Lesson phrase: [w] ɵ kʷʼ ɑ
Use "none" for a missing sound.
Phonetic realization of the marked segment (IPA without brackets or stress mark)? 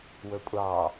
w